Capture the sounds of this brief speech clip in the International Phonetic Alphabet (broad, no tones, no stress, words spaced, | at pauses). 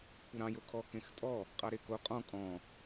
kʷʰʌɾɑ̃j okʰɔ kẽxtʼɔ | qʼɑɾeko qʼɔ̃ kʼɔ̃